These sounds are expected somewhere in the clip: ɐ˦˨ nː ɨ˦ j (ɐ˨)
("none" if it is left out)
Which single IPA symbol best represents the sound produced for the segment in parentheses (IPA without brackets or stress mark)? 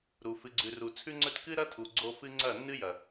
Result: ɐ˨